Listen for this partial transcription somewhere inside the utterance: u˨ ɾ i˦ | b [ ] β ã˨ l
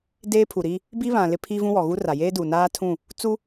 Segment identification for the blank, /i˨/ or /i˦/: i˦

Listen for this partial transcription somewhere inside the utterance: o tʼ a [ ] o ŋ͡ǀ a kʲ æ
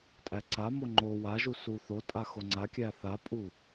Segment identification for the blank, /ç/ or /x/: x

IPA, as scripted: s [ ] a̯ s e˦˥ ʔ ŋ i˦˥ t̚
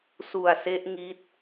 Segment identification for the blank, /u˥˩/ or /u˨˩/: u˨˩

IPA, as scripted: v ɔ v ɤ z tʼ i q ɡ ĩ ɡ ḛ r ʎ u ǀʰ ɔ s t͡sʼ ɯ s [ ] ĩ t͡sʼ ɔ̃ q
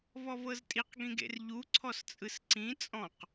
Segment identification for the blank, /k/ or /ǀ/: ǀ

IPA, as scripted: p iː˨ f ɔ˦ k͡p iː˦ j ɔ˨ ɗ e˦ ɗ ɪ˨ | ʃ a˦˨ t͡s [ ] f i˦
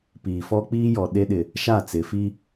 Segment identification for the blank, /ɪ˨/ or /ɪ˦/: ɪ˨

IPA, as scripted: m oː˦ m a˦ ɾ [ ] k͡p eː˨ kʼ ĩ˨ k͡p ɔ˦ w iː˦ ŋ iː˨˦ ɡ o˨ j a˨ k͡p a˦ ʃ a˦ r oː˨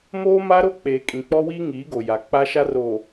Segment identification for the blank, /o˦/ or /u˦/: o˦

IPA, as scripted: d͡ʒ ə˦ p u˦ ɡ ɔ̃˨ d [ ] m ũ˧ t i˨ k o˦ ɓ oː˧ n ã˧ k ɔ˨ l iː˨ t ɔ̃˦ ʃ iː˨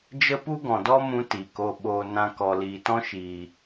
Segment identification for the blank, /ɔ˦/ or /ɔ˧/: ɔ˦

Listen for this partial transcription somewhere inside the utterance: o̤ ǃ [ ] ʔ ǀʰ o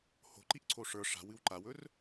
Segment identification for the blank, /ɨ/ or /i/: i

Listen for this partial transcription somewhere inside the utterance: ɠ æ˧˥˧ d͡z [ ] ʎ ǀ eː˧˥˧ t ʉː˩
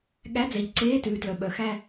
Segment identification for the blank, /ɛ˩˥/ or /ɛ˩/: ɛ˩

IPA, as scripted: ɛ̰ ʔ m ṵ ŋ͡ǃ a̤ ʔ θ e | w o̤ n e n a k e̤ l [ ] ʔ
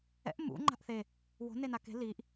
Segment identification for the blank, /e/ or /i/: i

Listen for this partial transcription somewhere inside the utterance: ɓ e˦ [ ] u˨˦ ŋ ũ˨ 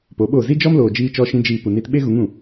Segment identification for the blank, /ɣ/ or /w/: ɣ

